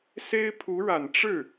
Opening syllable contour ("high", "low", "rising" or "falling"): high